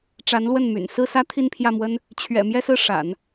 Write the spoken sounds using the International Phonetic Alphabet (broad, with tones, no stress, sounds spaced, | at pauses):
ʈ͡ʂ a˧˥ n l w ə˥˩ n m y̰˨˩ n s ɹ̩˥˩ s ä˥ t̪ʰ i˥˧ n pʰ j ä˥˩ m w ə˥ n | t͡ɕʰ ɥ ɛ̰˨˩ m j ɛ˥˧ s ɹ̩˥˩ ʂ a̰˨˩˦ n